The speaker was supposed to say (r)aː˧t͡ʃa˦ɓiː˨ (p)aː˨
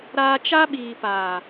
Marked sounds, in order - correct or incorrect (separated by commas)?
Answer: incorrect, correct